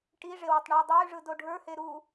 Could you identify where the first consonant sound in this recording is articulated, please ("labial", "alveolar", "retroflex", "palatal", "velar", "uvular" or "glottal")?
retroflex